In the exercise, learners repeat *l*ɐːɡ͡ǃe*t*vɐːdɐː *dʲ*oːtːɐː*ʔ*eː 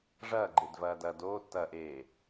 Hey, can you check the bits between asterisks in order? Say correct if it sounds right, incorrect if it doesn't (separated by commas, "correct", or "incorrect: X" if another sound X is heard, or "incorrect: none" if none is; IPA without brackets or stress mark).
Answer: incorrect: ʐ, incorrect: d, incorrect: d, correct